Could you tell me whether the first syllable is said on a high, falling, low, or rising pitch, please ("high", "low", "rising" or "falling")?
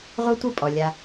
high